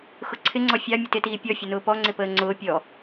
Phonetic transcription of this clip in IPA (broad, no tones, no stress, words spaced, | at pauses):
xʊǀʰɪŋ͡ǀɔ fʲɑ mʲətɪtiː pʲɔfʲʊnʊː pɔŋ͡ǀɪpəː ŋ͡ǀʊː pʲɔ